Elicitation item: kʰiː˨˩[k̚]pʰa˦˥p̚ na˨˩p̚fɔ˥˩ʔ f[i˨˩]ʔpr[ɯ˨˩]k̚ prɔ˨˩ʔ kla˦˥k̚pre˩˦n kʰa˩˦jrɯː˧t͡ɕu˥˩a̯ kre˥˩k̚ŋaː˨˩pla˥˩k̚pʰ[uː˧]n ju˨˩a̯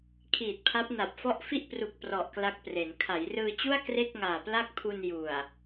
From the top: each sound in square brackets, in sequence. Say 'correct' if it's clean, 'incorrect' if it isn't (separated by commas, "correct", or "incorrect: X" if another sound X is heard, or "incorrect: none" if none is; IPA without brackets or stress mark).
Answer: incorrect: t̚, incorrect: i˥˩, incorrect: u˨˩, incorrect: u˧